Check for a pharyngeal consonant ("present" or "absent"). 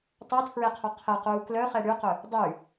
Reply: absent